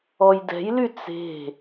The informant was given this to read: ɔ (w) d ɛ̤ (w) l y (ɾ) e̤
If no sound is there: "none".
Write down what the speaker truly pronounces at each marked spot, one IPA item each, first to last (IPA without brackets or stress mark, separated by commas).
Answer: j, j, t͡s